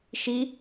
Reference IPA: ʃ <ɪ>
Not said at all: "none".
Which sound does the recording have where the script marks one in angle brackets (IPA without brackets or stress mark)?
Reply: i